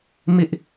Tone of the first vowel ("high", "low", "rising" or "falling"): high